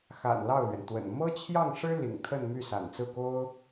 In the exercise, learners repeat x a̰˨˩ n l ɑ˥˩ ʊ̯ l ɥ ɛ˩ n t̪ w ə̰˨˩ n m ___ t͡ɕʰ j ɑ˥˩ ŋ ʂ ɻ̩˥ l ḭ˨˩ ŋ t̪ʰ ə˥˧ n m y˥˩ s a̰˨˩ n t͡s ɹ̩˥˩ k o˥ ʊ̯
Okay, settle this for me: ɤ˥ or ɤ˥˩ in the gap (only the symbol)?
ɤ˥